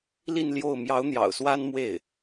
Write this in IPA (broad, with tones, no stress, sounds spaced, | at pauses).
l i˥˧ n l j o˥˩ ʊ̯ m j ɑ˧˥ ʊ̯ n̪ j ɑ̰˨˩ ʊ̯ s w a˥ n m w e˥˩ ɪ̯